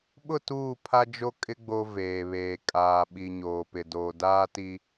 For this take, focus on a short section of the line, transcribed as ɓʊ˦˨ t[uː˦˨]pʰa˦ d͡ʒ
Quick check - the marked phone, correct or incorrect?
correct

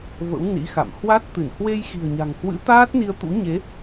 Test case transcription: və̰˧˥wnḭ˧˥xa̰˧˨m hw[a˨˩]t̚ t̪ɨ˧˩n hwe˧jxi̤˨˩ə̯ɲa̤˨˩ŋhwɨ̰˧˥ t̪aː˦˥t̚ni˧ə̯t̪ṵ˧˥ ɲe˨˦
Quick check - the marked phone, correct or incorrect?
incorrect: a˦˥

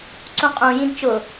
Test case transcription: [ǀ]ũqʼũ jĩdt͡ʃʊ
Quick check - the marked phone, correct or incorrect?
correct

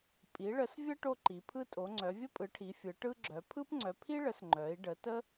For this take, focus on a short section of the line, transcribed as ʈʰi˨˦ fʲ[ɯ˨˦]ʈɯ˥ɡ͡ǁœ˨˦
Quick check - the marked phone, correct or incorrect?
correct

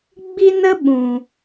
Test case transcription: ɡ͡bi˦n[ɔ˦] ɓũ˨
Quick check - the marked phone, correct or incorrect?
incorrect: ə˦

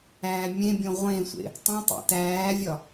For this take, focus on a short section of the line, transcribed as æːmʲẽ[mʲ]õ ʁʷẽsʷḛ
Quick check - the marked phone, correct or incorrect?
incorrect: bʲ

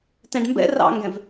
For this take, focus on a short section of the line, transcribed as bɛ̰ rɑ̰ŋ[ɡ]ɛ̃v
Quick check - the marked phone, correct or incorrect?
correct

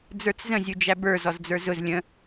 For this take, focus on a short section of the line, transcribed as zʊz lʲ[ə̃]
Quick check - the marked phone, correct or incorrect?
correct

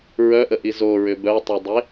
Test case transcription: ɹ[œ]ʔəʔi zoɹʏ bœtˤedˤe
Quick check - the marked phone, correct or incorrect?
correct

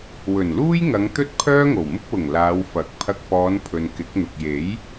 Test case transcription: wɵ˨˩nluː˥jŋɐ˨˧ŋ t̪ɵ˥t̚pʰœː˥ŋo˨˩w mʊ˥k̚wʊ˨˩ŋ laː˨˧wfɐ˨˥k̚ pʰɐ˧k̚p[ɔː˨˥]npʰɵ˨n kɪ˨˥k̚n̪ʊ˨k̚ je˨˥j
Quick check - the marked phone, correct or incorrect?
incorrect: ɔː˨˧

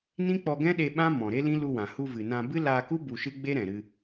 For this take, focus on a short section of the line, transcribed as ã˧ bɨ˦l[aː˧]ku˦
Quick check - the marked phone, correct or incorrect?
correct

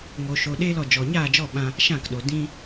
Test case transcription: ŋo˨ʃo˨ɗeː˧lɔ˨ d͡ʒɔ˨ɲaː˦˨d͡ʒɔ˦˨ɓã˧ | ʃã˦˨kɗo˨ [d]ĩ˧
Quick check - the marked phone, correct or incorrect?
correct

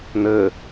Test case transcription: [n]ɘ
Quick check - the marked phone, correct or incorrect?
correct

